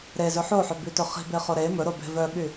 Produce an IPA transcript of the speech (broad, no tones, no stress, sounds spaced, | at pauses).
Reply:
ɾ e z ɵ ħ o ħ œ b y t ɵ χ i̤ b e χ o ɾ e m ɵ ɾ o b e̤ v œ ɓ y